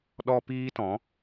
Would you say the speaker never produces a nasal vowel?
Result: no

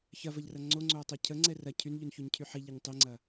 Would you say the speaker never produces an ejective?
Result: yes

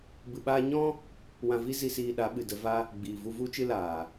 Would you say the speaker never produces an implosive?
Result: no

